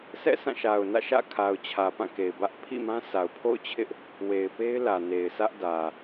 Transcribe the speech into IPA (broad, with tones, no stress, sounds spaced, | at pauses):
sʰ ɛ̰˦˨ s ã˦˨ ʃ a˨ ʊ̯ n ä̰˦˨ ʃ ä̰˦˨ kʰ a˨ ʊ̯ t͡ɕʰ ä˨ p ã˦˨ k e˨ ɪ̯ b ä˦ ʔ pʰ ḭ˦˨ m ã˦ s a˨ ʊ̯ pʰ o̰˦˨ ʊ̯ t͡ɕʰ ɪ˦ ʔ | w e˨ ɪ̯ p e˦ ɪ̯ l ä˨ n e˨ ɪ̯ sʰ ä˦ ʔ d ä˨